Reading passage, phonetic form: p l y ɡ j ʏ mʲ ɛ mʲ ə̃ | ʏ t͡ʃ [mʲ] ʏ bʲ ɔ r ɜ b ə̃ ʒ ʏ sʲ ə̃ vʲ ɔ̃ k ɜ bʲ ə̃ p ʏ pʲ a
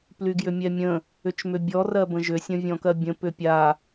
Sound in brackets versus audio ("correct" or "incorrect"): incorrect